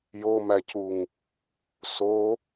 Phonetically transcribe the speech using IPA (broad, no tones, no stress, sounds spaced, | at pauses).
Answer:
j o m æ c u ŋ | s o